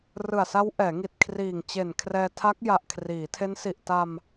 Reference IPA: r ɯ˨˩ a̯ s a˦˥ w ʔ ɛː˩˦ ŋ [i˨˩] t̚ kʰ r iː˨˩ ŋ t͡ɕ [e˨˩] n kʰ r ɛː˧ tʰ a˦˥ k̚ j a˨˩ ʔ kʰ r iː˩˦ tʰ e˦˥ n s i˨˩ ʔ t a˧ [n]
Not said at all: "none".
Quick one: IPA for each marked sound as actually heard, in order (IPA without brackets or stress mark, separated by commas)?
i˨˩, e˨˩, m